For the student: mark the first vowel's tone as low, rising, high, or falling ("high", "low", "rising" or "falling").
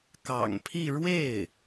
low